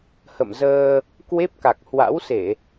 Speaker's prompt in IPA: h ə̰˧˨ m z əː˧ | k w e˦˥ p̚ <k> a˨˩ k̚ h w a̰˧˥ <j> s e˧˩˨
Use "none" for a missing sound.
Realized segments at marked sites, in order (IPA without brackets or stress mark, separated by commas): k, w